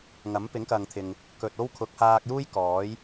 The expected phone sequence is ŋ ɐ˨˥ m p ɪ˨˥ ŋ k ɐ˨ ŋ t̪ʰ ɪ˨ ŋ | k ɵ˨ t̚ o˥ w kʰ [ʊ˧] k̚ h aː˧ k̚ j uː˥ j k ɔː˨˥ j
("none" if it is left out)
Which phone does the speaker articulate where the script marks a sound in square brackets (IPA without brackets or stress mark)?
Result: ʊ˨˥